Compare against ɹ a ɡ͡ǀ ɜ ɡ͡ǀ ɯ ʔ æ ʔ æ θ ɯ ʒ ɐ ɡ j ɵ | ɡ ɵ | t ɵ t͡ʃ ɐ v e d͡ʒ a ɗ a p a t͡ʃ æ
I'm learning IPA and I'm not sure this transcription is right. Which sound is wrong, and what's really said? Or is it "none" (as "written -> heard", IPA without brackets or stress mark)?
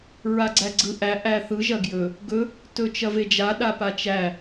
ɜ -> æ